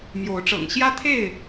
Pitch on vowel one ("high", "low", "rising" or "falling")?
rising